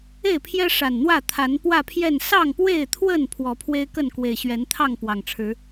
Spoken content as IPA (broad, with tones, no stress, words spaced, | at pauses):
e˥˨ɪ̯pʰjɛ˦ ʂa˨˩nn̪wä˥˨t̪ʰa˨˦n pwä˥˨pʰjɛ˥˨n sɑ˥˨ŋpwe˥˨ɪ̯t̪ʰwə˥˨n pʰwɔ˨˦pʰwe˦ɪ̯kə˥˨n kwe˨˩ɪ̯ɕɥɛ˨˦n t̪ʰɑ˥˨ŋ pwɑ˨˩ŋʈ͡ʂʰɻ̩˨˦